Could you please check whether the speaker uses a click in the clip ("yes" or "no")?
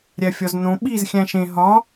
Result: no